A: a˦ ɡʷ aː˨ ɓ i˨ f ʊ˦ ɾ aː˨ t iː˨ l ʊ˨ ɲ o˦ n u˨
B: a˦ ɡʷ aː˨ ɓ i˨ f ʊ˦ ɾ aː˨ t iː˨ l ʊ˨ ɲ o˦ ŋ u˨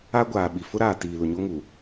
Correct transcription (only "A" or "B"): B